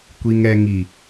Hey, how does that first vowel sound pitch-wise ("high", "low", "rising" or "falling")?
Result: low